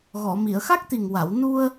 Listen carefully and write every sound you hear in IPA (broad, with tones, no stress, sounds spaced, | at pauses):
ɣ ɔ˨˩˨ m i˨˩˨ ə̯ x a˦˥ k̚ t̪ i˨˩ ŋ w a˨˩˨ w n u˧ ə̯